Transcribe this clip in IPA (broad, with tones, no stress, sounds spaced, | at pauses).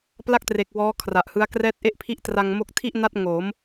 p l a˥˩ k̚ t r e˨˩ k̚ w ɔː˦˥ kʰ r a˨˩ ʔ h ɯ˦˥ a̯ k r ɛː˦˥ t̚ ʔ e˥˩ ʔ pʰ i˦˥ ʔ t r a˧ ŋ m o˦˥ k̚ tʰ i˥˩ ʔ n a˦˥ t̚ ŋ o˩˦ m